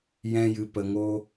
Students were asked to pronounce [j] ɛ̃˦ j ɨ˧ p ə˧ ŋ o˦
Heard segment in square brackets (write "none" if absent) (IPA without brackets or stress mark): j